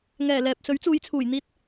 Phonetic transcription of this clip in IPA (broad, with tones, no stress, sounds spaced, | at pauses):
ŋ ɛː˨˩ l ɛː˨ p̚ s ɵ˨˥ ɥ t͡s uː˨˧ j t͡sʰ uː˨˩ j n̪ iː˧ t̚